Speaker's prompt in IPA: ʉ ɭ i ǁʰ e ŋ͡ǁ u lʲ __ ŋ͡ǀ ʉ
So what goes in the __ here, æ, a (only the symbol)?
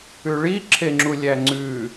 æ